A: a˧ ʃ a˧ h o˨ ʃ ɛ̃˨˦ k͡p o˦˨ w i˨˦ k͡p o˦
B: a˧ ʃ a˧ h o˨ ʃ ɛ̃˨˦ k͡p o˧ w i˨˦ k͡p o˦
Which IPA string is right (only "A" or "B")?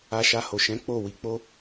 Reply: A